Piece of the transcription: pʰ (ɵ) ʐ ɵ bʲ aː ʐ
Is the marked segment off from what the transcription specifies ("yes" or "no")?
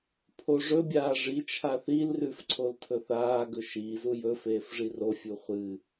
yes